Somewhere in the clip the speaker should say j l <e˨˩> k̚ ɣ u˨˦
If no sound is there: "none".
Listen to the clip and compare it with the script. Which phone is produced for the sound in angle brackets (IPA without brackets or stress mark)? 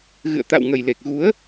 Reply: e˨˩